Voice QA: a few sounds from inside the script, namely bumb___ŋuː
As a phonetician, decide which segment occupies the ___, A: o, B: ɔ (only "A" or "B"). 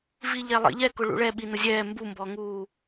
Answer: B